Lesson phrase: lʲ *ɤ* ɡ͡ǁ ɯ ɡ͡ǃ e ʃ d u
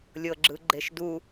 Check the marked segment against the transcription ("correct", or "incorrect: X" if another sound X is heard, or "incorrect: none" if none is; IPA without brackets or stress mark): correct